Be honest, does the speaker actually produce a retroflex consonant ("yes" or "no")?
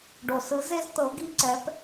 yes